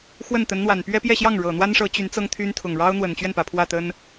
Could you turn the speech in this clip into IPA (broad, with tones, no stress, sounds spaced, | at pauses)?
x w ə˥˩ n t̪ ə˧˥ n n̪ w a˨˩ n p ɥ ɛ˥ p j ɛ˥˧ ɕ j ɑ˥˩ ŋ ɻ ɤ˨˩ n̪ w a˥ n ʂ ɤ˧˥ t͡ɕ y˧˥ n t͡s ɤ˥ ŋ t̪ʰ y˥ n t̪ʰ ʊ˨˩ ŋ ɻ ɑ˥ ʊ̯ n̪ w ə˨˩ n t͡ɕ ɥ ɛ˥˩ n p ä˨˩ pʰ w ä˥˩ t̪ ə˥ n